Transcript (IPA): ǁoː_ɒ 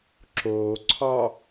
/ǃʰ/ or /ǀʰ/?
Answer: ǀʰ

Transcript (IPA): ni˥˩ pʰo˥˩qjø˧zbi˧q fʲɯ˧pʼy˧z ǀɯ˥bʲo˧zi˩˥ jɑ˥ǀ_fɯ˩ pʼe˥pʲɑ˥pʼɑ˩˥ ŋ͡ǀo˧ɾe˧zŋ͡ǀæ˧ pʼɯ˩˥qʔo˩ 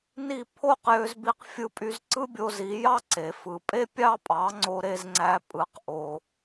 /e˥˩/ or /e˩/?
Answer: e˩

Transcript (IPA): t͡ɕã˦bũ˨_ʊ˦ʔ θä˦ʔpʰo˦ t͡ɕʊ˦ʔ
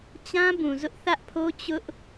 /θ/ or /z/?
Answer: z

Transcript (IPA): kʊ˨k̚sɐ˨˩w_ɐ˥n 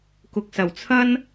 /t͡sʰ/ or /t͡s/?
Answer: t͡sʰ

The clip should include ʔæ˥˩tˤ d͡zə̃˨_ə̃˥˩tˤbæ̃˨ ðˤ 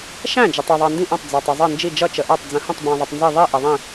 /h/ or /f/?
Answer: h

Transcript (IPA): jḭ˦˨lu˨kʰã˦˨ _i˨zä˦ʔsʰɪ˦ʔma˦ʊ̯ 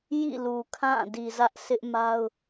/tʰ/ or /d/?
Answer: d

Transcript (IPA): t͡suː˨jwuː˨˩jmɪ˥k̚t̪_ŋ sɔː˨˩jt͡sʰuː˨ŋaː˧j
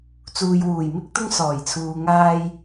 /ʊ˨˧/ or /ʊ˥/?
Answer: ʊ˥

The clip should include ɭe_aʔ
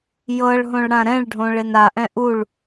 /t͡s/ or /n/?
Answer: n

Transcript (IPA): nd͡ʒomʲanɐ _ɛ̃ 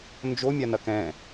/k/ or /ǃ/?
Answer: k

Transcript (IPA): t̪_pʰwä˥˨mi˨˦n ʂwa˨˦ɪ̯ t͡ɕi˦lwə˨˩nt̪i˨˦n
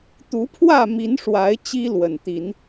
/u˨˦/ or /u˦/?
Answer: u˨˦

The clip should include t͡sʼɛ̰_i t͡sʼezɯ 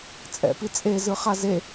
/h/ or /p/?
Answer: p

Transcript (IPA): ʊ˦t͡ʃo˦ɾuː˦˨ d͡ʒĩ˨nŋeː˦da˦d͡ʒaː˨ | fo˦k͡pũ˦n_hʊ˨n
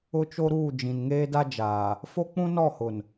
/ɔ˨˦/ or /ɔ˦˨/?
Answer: ɔ˦˨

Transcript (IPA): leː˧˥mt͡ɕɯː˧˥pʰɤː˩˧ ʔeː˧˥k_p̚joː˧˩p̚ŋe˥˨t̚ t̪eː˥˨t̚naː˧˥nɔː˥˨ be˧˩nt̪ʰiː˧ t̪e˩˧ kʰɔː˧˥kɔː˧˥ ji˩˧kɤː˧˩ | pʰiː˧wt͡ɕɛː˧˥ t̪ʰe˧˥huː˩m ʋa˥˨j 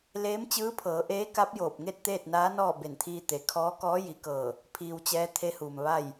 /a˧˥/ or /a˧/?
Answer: a˧˥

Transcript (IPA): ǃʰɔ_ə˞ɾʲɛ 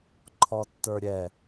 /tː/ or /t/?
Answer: tː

